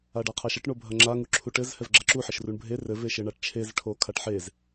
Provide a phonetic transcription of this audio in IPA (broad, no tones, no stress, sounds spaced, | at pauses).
a ɖ a qʰ a ʃ ɐ ʈ ɳ o bʱ ɐ ŋ͡ǁ a ŋ u ǁʰ u ʈ ɘ z h ɛ v ɡ͡ǁ ɐ ǁ u ħ ɘ ʃ r u ɳ bʱ e r ɘ v e ʃ ɘ ɳ a ʈ t͡ʃʰ e z ʈʰ o kʰ a ʈ ħ e z